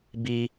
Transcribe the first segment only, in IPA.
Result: b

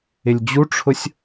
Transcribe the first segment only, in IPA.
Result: ɪ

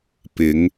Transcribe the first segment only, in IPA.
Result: p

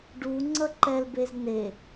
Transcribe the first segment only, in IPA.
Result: ɖ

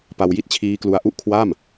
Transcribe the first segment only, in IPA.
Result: p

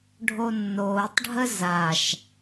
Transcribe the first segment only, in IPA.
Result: ɖʱ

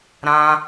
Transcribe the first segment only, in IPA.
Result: ɾ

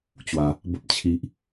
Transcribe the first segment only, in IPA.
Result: t͡ɕ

